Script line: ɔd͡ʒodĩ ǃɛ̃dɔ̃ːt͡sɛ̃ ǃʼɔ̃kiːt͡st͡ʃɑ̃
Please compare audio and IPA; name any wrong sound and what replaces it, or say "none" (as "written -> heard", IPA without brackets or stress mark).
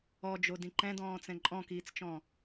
ɑ̃ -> ɔ̃